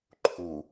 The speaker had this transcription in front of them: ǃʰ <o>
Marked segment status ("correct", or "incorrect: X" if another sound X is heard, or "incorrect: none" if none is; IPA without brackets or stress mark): incorrect: u